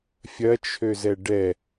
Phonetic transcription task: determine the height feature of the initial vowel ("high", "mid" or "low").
low